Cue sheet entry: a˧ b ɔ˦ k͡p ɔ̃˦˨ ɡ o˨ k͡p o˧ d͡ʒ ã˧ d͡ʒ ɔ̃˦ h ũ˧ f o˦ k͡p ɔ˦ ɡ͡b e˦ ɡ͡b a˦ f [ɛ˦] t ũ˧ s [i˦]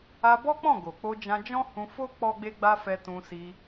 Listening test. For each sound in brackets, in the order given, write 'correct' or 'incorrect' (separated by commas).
incorrect, incorrect